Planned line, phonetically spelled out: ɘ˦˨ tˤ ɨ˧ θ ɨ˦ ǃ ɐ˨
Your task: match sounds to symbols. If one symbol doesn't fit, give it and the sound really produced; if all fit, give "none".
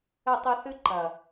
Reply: none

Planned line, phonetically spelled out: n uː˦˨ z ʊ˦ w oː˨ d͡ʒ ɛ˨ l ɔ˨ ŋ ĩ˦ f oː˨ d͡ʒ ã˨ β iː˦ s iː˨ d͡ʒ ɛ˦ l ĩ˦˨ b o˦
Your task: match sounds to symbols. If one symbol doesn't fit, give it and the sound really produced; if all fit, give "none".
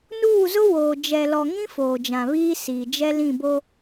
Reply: none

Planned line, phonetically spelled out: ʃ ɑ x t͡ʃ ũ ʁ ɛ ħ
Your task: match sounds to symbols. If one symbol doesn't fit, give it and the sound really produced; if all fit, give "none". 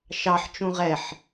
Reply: x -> ħ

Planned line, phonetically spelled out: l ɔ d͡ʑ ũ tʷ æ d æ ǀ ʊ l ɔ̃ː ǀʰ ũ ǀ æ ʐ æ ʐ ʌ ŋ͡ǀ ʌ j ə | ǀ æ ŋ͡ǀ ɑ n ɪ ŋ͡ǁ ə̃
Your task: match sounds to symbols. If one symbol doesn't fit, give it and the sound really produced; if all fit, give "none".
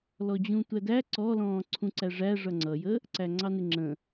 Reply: ʊ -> ɔ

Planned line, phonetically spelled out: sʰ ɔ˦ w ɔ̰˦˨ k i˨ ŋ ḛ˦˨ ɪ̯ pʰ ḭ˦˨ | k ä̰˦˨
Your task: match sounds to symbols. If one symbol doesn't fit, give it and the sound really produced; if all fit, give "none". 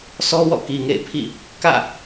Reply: none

